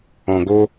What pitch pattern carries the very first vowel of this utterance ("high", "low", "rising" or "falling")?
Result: low